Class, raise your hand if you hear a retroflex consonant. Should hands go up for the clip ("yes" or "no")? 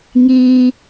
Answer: no